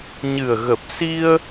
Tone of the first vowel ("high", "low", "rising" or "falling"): low